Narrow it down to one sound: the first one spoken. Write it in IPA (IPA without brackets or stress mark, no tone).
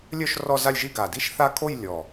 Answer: lʲ